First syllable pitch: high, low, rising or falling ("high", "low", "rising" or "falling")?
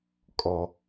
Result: low